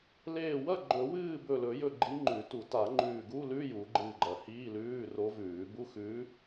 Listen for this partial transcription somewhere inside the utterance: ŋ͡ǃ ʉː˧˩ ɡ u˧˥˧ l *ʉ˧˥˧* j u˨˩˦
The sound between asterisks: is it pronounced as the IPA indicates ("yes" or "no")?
yes